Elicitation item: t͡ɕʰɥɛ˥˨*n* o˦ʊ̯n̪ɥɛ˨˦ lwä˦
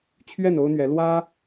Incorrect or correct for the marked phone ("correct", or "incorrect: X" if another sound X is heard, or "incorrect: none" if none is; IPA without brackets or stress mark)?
correct